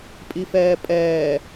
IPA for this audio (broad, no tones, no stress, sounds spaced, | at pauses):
pʼ i f ɛː pʼ ɛː